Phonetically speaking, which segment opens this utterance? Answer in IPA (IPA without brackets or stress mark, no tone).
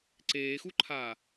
ǀ